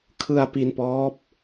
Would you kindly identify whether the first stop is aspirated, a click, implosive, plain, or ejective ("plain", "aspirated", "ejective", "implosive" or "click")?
aspirated